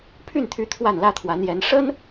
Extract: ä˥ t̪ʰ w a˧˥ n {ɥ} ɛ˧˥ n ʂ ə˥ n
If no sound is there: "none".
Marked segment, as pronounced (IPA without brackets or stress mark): j